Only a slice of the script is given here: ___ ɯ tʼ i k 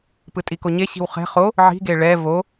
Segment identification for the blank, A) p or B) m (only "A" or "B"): A